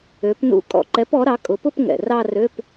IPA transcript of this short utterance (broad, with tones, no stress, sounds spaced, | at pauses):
ø˩˥ p n ṵ˧˥˧ kʼ ɔ̰˨˩ ǃ ɛ˩˥ p ɔ˩˥ ɾ ɑ˩˥ kʼ ʊ˩˥ p ʊ˥˧ p ŋ ɛ̰˨˩ r ɑ˥˧ r ø˧˥˧ p